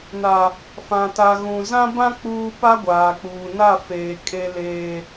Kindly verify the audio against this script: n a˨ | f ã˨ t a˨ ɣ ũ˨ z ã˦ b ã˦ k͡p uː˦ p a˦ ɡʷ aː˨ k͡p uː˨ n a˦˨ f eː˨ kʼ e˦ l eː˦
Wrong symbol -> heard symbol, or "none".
none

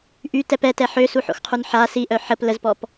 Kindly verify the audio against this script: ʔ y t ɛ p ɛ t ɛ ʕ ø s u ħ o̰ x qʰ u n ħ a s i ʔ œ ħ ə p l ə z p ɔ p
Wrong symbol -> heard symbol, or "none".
ʕ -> ħ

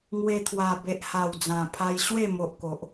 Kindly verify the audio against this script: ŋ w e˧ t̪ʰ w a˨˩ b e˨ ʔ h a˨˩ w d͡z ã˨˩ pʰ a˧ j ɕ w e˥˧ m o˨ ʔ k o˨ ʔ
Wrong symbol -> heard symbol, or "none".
none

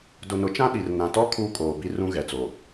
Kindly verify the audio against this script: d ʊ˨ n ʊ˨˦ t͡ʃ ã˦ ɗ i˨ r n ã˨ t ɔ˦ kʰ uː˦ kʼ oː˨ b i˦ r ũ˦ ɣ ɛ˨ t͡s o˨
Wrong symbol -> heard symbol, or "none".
none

